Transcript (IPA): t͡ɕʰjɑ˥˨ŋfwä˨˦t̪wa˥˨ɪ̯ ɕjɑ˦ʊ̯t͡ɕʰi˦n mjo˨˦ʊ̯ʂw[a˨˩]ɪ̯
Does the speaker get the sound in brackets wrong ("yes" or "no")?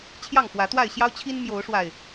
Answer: no